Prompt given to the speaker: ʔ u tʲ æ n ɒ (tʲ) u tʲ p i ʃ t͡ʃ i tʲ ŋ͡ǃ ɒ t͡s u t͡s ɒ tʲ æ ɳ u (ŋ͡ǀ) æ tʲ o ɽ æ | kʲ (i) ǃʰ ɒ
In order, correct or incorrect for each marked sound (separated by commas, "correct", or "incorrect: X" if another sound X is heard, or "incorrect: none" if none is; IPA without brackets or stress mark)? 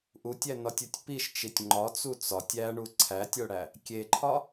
correct, incorrect: ǀʰ, incorrect: e